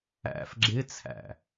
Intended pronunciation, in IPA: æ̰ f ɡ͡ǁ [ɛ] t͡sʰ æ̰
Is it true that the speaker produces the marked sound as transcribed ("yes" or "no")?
no